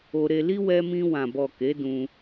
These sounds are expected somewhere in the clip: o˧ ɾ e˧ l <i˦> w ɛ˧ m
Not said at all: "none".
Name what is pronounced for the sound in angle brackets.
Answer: i˦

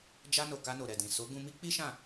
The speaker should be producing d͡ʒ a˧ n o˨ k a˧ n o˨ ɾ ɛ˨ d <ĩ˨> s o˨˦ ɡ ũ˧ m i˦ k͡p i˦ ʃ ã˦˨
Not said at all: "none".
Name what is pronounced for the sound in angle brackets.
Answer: ĩ˨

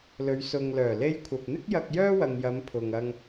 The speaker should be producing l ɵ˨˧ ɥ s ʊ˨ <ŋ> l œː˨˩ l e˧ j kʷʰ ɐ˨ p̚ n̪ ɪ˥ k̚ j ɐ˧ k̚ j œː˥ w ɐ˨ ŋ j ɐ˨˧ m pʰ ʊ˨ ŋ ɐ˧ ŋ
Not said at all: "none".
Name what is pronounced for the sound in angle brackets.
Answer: ŋ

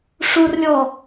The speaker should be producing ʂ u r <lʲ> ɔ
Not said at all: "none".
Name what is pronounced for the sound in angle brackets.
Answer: lʲ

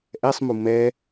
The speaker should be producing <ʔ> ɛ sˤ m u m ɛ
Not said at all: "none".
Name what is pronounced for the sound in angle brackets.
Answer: ʔ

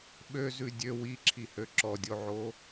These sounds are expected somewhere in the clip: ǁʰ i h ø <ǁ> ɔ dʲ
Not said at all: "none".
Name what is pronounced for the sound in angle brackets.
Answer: ǁ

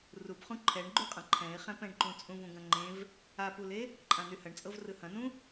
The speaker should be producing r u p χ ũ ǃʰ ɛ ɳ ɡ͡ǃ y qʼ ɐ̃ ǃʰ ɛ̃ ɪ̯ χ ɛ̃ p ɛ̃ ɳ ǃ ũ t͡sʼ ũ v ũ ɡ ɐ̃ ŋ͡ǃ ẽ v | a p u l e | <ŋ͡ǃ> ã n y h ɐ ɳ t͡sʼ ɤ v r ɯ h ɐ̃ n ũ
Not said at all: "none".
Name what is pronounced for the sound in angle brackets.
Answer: ǃʼ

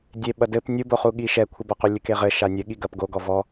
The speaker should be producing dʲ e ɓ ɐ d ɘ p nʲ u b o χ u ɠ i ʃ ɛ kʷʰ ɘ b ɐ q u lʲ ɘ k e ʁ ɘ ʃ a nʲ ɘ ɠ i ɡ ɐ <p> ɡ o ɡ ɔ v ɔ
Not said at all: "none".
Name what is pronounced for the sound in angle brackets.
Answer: p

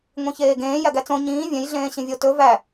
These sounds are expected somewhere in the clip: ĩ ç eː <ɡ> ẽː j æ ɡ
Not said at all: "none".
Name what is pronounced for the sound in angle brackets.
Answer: ɡ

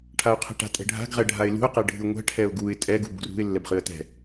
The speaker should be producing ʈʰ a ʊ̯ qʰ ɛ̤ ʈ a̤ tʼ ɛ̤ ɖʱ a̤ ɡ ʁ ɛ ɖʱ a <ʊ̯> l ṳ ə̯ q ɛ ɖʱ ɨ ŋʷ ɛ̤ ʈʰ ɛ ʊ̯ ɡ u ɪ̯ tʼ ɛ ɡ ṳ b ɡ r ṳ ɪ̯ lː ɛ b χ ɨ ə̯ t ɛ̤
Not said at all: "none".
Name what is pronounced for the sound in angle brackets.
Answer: ɪ̯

